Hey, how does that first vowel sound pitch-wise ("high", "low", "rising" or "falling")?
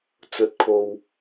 low